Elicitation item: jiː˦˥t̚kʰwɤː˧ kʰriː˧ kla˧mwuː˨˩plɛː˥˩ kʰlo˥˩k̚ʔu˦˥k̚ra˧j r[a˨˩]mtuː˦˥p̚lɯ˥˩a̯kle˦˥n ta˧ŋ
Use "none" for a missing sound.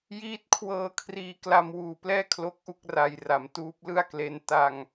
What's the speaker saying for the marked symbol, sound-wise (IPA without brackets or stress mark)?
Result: a˩˦